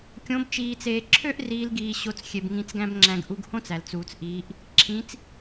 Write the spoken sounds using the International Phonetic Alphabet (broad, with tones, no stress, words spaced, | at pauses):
kʲõ˧˥bt͡ʃiː˧t͡seː˧ ǁʰø˥ʔ riː˧˥lɡiː˧ɕo˧t͡s xʲe˧bŋĩ˧˥t͡sɡæ̃˥bŋ͡ǁæ̃˧ɡ ʔu˧ɡhõ˥t͡s æ˩lt͡suː˩t͡s ʔiː˩˧ʔ | ǁʰĩ˧˥t͡s